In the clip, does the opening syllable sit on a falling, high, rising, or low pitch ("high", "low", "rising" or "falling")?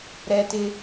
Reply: high